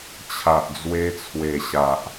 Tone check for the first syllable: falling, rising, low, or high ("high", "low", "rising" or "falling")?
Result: low